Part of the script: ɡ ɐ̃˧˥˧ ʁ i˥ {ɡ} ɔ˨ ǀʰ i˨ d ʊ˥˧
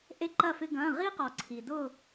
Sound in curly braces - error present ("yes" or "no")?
yes